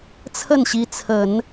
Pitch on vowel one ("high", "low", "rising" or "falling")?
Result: falling